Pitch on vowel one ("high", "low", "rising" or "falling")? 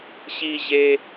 high